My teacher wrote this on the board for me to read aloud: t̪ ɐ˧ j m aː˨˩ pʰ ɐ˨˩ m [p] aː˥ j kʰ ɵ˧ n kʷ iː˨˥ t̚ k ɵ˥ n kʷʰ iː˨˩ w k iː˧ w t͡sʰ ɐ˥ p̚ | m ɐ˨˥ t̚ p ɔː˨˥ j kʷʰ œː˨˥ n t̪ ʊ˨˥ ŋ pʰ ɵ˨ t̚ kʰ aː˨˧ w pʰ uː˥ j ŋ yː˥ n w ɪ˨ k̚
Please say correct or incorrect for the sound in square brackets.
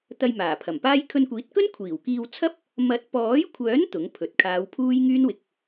correct